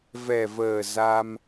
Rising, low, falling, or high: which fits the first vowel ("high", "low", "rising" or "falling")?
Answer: low